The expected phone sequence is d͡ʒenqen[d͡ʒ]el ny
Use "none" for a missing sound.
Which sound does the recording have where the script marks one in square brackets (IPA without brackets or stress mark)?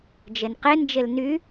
d͡ʒ